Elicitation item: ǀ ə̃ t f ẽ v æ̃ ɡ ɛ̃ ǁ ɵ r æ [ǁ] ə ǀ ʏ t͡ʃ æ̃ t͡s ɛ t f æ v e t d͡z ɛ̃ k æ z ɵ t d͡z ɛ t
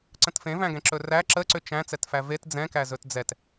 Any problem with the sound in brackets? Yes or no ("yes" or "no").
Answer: no